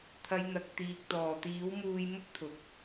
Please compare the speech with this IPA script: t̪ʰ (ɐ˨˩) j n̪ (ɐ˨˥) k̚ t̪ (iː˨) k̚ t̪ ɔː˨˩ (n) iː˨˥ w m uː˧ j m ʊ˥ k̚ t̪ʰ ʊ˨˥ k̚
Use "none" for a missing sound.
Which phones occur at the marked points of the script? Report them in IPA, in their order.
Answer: ɐ˨˧, ɐ˨, iː˨, t̪

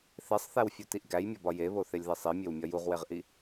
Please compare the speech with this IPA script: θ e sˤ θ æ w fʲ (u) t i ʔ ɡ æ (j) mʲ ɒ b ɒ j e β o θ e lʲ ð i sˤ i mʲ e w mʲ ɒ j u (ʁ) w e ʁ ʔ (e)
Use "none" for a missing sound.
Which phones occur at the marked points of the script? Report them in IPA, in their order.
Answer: u, j, ʁ, i

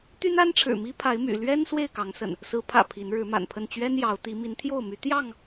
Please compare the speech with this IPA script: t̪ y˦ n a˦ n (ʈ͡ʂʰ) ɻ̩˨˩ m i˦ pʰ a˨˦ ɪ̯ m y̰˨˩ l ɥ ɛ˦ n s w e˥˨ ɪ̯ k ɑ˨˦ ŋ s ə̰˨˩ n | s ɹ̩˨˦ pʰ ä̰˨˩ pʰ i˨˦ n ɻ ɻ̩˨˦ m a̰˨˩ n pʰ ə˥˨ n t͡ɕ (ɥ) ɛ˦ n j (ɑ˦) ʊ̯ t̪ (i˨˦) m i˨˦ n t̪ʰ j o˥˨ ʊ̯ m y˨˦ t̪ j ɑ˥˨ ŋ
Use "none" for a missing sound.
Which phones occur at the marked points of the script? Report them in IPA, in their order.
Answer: ʈ͡ʂʰ, ɥ, ɑ˨˦, i˨˦

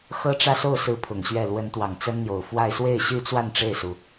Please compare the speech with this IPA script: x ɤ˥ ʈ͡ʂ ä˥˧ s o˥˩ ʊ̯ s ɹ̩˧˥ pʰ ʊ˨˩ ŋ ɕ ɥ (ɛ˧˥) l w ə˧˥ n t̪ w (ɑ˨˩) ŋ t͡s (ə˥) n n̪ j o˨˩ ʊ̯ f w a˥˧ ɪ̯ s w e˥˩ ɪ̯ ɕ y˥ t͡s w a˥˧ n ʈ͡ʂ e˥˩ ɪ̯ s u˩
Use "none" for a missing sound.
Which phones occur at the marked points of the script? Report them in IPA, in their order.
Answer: ɛ˥˩, ɑ˨˩, ə˥

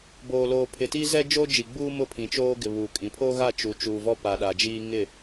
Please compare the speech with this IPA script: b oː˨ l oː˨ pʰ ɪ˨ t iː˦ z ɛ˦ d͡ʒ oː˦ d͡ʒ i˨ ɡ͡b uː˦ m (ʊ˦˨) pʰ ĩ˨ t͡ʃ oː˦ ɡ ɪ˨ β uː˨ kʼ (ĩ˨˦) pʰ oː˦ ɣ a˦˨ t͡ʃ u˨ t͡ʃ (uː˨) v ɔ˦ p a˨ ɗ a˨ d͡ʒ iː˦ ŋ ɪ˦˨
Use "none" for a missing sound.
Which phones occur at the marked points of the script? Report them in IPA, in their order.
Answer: ʊ˦˨, ĩ˨˦, uː˨

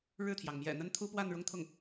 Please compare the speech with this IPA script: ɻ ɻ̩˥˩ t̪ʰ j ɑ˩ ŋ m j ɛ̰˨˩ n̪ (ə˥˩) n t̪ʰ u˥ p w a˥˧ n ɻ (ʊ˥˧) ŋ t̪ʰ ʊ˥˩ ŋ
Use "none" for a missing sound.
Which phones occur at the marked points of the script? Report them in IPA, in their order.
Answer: ə˥, ʊ˥˧

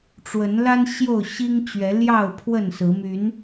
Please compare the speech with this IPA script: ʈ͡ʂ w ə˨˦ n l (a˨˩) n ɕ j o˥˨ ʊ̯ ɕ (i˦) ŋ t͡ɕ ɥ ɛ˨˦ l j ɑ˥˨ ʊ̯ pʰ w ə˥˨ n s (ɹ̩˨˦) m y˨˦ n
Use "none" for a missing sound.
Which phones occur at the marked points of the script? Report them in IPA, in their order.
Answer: a˦, i˦, ɹ̩˨˦

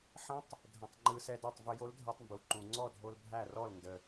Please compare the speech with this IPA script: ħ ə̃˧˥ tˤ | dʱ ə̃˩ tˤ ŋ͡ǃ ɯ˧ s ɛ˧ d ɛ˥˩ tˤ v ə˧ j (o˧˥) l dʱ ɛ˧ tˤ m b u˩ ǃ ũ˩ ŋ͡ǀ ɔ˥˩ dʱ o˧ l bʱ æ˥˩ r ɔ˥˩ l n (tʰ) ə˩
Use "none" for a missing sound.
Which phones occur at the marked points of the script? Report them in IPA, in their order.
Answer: o˧˥, d

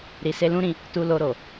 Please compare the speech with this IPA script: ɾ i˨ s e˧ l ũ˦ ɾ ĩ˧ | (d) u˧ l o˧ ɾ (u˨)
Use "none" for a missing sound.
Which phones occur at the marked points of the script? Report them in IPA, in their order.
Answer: t, o˨

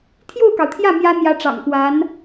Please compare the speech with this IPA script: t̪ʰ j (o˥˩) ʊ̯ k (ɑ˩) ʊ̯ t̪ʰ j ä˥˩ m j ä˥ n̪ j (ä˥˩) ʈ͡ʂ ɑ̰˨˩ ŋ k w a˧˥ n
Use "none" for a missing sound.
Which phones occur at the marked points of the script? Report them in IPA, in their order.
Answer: o˥˩, ɑ˩, ä˧˥

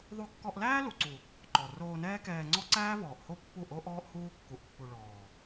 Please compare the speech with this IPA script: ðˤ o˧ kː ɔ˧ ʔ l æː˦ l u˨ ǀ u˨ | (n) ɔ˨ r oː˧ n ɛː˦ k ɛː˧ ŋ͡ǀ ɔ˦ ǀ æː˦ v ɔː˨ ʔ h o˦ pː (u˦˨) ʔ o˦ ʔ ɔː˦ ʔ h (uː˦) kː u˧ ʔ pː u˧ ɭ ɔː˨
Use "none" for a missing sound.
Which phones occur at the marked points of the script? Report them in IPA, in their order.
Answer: ǃ, u˦˨, uː˦

